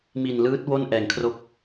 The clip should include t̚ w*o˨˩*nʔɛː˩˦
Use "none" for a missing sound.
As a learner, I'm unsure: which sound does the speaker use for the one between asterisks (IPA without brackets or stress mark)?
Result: o˥˩